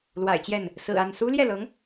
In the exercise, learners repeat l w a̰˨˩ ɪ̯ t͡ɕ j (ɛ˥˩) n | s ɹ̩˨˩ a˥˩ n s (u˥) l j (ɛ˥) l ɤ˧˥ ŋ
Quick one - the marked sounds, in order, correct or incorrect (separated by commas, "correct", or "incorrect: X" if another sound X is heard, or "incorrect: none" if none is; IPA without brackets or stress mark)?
correct, correct, incorrect: ɛ˥˩